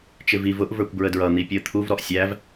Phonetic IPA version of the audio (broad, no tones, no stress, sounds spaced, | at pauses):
t͡ʃ ɪ v i v ʊ ʔ v ə˞ kʷ b ɹ ə d ɹ ʌ n̪ i pʲ ʊ ə̯ t̪ʰ u v ɾ ɔ ʔ sʲ æ v